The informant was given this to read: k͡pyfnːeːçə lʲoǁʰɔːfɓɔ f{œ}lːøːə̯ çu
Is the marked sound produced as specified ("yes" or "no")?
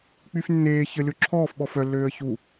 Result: yes